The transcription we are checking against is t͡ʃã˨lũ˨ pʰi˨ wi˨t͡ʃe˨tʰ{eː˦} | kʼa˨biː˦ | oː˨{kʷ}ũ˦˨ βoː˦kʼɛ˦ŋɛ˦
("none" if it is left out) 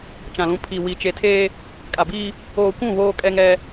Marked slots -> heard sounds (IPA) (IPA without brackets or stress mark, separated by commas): eː˦, kʷ